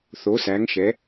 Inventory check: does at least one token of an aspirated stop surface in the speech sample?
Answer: no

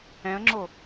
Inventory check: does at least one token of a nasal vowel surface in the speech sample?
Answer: yes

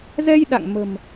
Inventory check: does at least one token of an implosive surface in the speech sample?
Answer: yes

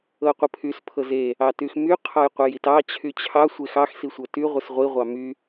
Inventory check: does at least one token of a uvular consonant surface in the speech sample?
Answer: yes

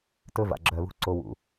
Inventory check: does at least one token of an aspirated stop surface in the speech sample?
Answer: no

